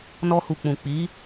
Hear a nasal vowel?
yes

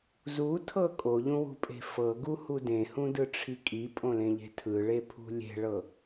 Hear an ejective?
yes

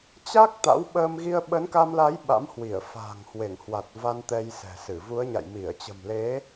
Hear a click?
no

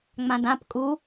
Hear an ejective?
yes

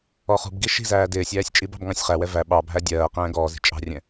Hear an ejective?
yes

